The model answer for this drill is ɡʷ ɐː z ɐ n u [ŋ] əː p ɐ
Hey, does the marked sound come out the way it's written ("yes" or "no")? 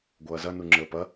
no